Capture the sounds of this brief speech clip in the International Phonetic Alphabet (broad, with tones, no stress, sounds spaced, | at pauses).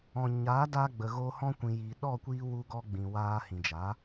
ɔ̃˨ ɲ aː˨˦ d aː˧ ɡ͡b ə˨ ɣ oː˧ h ɔ̃˧ kʷ ĩ˨ j iː˨ ɗ ɔ˦˨ kʷ iː˧ w u˧ ɡ ɔ˧ ɡ͡b ĩ˨ w aː˧ h ĩ˨ d͡ʒ a˨˦